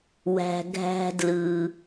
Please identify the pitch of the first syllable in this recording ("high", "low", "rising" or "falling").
low